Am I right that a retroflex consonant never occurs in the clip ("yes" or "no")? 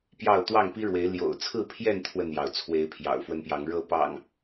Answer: no